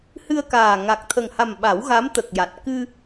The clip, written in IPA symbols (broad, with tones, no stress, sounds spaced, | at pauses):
h ɨ˧ ə̯ k aː˨˩ ŋ a˨˩ k̚ t̪ʰ ə˨˩ ŋ h a˨˩ m ɓ a˨˩˦ w ɣ a˧˥ m t̪ ə˨˩ k̚ j a˨˩ t̚ k ɨ˧